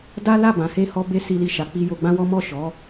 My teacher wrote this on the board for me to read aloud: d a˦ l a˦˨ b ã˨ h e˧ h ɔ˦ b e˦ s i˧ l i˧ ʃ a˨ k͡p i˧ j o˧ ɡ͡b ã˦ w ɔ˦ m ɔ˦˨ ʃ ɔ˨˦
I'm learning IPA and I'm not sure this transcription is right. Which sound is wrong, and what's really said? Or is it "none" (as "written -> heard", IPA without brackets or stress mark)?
none